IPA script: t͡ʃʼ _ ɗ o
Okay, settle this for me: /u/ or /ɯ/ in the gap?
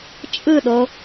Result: ɯ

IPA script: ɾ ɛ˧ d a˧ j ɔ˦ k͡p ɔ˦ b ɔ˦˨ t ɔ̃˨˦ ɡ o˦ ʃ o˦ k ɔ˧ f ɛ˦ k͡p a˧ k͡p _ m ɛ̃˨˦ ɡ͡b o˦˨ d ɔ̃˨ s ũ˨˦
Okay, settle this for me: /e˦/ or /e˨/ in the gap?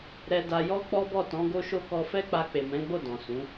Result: e˨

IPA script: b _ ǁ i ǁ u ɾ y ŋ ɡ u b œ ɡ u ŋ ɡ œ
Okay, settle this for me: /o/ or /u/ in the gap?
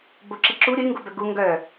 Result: o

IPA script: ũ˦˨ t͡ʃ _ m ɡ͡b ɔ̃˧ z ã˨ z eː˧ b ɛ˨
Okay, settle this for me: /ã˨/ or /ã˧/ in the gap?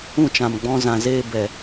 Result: ã˨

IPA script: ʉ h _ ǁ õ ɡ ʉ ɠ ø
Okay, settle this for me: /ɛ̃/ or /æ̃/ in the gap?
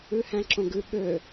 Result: æ̃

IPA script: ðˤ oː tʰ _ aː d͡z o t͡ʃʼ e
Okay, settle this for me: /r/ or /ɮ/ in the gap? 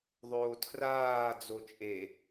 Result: r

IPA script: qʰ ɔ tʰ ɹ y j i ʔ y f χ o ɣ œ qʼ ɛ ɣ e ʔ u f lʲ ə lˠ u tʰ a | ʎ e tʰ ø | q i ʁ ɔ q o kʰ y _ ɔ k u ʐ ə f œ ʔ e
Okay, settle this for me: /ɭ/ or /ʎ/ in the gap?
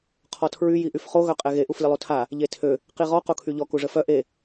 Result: ʎ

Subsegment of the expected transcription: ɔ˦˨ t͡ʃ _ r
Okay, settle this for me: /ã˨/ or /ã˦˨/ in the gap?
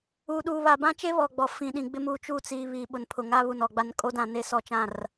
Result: ã˦˨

